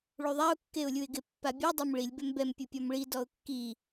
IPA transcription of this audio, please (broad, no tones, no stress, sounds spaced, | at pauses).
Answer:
ɭ u ðˤ a ʊ̯ kː e ʊ̯ lʲ u ɪ̯ ɡ ɪ pː a bʲ ɔ dˤ e m ɭ i lʲ b ɛ m b ɛ m pʲ u pʲ ɔ m ɭ i d ɔ ʊ̯ kː i